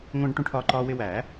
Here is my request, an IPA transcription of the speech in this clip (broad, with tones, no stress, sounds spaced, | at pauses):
ŋʷ ə̃ː˧ ɖ ʈ ũ˧ ʈʰ ɒː˧ ǃ ɒː˧ w ɪ˧ w æ˨˩˦